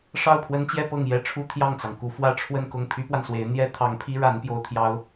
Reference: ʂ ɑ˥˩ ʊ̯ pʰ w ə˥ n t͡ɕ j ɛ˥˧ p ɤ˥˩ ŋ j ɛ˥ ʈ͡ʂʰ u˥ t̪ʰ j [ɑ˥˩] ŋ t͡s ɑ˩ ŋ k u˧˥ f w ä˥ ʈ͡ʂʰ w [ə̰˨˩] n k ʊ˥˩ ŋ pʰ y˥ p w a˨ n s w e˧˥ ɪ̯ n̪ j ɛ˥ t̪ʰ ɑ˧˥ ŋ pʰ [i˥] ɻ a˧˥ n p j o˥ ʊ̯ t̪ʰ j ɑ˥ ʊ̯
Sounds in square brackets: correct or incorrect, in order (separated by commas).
correct, incorrect, correct